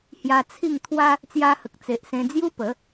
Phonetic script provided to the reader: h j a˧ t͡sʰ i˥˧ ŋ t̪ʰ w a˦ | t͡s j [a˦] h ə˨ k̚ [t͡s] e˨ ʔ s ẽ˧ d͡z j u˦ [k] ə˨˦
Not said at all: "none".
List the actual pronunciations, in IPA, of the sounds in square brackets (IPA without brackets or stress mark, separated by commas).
a˧, t͡s, p